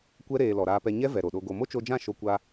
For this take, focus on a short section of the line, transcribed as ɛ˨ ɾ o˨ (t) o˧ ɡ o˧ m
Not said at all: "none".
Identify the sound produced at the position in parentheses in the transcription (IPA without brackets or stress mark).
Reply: ɗ